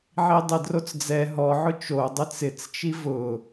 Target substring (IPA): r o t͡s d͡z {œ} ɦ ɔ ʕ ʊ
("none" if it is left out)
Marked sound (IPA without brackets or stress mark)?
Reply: ɛ